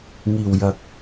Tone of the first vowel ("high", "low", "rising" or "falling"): low